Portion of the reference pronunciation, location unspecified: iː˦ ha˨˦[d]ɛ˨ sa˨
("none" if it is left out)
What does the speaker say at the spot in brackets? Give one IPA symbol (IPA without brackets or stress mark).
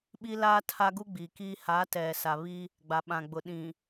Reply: t